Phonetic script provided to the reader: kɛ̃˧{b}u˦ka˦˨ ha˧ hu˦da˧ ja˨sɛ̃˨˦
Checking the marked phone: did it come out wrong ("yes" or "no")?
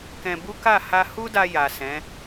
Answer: no